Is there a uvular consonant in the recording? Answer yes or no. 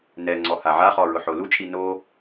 yes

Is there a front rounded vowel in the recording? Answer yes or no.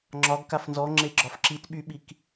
yes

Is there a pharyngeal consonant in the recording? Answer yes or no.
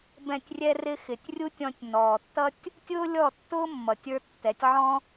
yes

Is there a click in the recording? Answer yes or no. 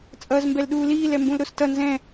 no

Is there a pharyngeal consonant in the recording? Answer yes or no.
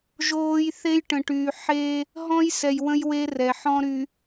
yes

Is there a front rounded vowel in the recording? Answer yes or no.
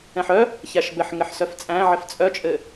yes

